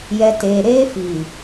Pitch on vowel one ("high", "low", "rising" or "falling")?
low